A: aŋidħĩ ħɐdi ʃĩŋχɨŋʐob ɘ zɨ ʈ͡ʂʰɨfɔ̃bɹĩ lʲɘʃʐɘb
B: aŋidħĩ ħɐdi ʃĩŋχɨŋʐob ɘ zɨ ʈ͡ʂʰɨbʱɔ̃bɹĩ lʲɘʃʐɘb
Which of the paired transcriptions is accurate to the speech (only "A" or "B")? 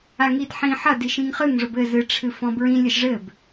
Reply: A